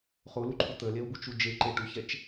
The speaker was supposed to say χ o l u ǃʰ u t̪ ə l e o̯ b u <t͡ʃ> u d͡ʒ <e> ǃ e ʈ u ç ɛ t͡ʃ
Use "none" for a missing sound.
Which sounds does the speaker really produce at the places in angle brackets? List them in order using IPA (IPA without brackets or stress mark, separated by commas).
t͡ʃ, e